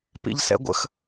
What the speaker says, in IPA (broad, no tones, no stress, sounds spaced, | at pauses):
p ḭ ʎ s ɛ̰ ɡʷ ə̰ x